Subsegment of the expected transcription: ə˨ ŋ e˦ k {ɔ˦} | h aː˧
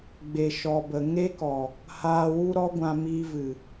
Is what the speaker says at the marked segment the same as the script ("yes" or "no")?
no